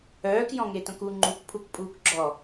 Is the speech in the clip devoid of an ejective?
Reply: no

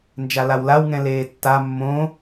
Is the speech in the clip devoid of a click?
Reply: yes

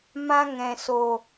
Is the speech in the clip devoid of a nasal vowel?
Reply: no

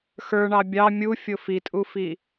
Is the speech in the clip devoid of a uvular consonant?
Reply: yes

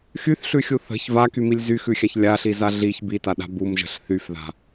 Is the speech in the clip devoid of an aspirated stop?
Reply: yes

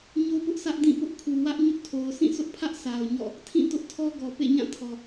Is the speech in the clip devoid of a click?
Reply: yes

